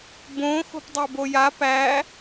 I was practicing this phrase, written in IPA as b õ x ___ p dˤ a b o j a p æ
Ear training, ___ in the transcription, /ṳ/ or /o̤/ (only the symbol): o̤